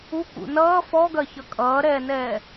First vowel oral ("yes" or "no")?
yes